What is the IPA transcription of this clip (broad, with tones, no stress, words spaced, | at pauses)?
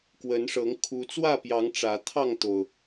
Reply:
kwə˨˦nʂɤ˨˦ŋ kʰu˨˦ t͡swä˥˨pjɑ˨˦ŋ ʈ͡ʂä˨˦ t̪ʰɑ˥˨ŋt̪o˩ʊ̯